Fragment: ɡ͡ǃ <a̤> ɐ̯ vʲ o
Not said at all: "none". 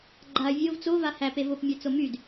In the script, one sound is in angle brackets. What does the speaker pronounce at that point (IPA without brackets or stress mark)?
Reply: a